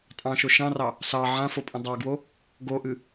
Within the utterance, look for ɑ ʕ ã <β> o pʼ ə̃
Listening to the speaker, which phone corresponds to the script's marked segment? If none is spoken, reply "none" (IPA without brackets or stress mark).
f